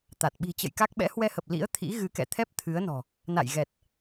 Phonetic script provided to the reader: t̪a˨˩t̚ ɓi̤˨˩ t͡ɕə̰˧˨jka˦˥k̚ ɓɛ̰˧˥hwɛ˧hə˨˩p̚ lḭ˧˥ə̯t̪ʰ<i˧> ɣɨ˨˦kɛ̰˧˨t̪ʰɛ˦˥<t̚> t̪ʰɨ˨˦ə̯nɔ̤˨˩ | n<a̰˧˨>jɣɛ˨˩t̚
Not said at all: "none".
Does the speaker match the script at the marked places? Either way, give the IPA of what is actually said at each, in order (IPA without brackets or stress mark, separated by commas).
ḭ˧˥, p̚, a̰˧˨